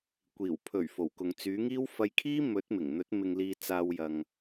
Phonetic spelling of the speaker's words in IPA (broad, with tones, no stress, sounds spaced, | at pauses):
kʷ iː˨˩ w pʰ ɵ˨˩ ɥ f o˨˩ w k ʊ˨ ŋ t͡s yː˨˥ ŋ iː˥ w f ɐ˧ j kʰ iː˥ m ɵ˨˥ t̚ m ɪ˨˩ ŋ n̪ ɵ˨˥ t̚ m ɪ˧ ŋ l iː˧ t͡s aː˧ w j ɐ˨ ŋ